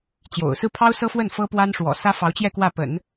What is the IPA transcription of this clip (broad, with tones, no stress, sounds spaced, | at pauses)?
t͡ɕ j o̰˨˩ ʊ̯ s ɹ̩˥˩ pʰ ɑ˥ ʊ̯ s ɤ˥ f w ə˥˩ n f ɤ˥ p w a˥ n ʂ w ɔ̰˨˩ s ä˥ f ɑ˧˥ ʊ̯ t͡ɕ j ɛ˥˧ k w ä˥˩ p ə̰˨˩˦ n